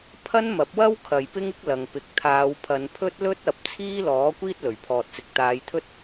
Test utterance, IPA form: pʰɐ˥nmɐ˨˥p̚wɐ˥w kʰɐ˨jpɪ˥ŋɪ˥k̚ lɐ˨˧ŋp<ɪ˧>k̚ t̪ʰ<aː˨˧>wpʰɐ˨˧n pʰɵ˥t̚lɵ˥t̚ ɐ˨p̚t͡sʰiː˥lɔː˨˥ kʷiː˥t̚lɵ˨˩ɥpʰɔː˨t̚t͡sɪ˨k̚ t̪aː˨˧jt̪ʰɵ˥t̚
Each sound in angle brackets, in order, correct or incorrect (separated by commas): incorrect, correct